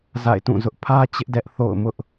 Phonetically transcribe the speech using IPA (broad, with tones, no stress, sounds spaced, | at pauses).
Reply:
z a̰˦˨ ɪ̯ t ũ˦˨ z ʊ˦ ʔ pʰ ä˦ t͡ɕ ɪ˦ ʔ d ɛ˦ ʔ θ o̰˦˨ ʊ̯ m ʊ˦ ʔ